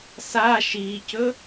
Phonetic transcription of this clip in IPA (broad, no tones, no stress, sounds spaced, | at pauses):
s a ʃ i c ɵ